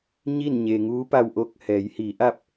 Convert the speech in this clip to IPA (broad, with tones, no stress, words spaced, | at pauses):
ɲi˥˨nɲe˩ŋuː˧˥pa˧w ʔo˧˥k̚ hɛː˩˧jhiː˩˧ʔa˥˨p̚